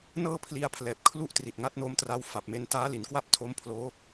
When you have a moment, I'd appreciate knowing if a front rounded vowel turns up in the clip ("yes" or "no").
no